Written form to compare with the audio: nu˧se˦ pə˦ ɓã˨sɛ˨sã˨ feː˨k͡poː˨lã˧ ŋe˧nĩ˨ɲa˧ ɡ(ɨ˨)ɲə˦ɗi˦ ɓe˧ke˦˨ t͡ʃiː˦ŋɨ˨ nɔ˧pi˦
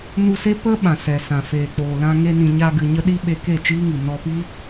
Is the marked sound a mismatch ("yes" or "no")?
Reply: no